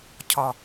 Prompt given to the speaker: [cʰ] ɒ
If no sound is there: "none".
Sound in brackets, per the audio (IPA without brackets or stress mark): cʰ